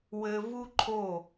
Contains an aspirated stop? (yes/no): yes